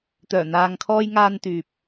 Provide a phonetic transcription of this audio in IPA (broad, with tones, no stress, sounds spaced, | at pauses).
t̪ œː˨˩ n̪ aː˨ ŋ kʰ ɔː˧ j ŋ aː˧ n t̪ yː˨ p̚